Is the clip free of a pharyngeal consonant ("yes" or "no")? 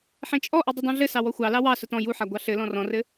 no